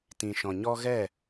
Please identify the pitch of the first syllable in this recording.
low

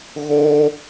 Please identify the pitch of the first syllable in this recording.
high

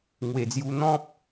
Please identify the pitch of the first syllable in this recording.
low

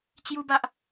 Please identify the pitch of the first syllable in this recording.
high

